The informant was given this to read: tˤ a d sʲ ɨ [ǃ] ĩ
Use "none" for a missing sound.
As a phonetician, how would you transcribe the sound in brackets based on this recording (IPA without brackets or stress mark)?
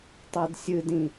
d